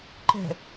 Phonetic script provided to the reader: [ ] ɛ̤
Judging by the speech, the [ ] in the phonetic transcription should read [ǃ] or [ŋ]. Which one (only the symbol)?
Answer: ǃ